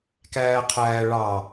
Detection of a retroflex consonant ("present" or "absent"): present